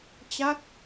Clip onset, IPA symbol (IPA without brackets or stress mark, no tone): t͡ɕ